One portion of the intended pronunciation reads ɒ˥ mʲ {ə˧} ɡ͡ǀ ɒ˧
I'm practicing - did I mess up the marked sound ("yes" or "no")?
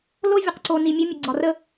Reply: no